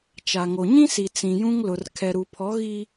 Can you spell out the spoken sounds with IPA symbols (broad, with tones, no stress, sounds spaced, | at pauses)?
t͡ʃ a˨ ŋ o˨ ɲ ĩ˦ s i˨ t͡s ĩ˨ j ũ˦ ŋ l ʊ˨ r kʰ ɛ˨ ɾ u˨ pʰ ɔ˨˦ ɣ i˦